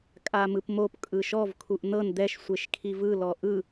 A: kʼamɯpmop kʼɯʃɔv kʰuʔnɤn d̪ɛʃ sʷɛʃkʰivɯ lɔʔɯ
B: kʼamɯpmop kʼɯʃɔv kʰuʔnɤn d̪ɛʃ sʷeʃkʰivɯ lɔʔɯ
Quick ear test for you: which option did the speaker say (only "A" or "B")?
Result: B